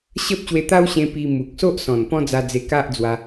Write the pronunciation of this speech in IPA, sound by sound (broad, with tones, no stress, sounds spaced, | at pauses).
ɕ ə˦ p̚ ɕ w e˧ t̪ a˦ w ɕ ẽ˧ p i˧ m u˨ k̚ s o˦ ʔ s ɔ̃˨˩ n p ɔ̃˦ d͡z a˧ d͡z e˧ k a˦ ʔ d͡z w a˧